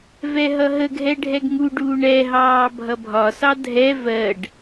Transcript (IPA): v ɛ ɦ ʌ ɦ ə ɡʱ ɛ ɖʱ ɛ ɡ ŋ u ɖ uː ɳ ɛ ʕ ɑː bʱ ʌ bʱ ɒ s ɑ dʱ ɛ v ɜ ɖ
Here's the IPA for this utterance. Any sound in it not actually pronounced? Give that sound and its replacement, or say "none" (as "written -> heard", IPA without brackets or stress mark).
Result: ʕ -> ɦ